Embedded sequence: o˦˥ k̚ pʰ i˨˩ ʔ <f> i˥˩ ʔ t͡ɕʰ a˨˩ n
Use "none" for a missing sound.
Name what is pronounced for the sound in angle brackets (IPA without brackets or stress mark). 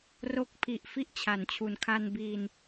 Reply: f